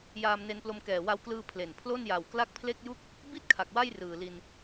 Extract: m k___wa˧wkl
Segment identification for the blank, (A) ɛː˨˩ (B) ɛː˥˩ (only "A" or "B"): A